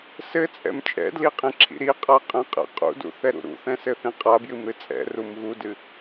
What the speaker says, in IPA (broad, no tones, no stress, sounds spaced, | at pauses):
s ɘ t͡sʼ ɛ̰ m t͡ʃʼ ɛ̰ d l i qʼ ĩ ǁʰ ḭ ɾ i qʼ a qʼ ɛ̃ qʼ ɛ̰ qʼ ṵ d ṵ θ ɛ ɾ ṵ ɾ ṵ θ ɛ̃ s ɘ θ ĩ qʼ a b j ɨ m ɾ ɨ t͡sʼ ɛ̰ r u m ɣ u d ɨ